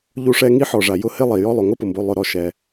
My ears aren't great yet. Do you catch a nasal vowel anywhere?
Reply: no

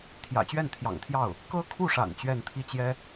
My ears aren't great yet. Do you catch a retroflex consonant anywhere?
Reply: yes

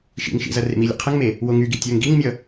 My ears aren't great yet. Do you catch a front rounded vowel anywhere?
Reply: yes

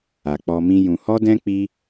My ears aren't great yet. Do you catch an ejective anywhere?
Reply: no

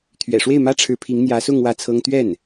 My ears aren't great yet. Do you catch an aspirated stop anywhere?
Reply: yes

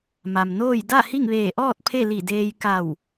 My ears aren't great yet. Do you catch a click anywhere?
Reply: no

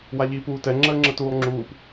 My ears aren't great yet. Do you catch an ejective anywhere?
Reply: no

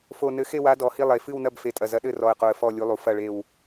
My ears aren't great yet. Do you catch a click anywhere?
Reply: no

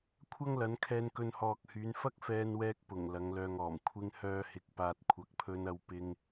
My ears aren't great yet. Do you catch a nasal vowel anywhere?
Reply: no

